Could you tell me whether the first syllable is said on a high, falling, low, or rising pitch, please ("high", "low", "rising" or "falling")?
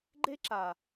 high